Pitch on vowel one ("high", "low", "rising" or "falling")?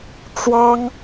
high